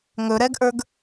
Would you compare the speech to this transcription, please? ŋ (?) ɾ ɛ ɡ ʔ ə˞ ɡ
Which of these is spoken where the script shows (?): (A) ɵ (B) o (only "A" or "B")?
A